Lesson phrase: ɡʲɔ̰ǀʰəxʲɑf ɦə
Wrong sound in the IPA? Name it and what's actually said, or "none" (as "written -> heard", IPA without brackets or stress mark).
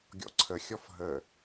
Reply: ɑ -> ɔ